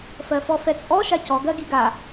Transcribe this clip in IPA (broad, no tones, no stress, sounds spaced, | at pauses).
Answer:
f ɜ f ɔ f ɛ t͡sʼ ɔ ʃ a c ɔ ɡ ɜ ɡ i ɡ a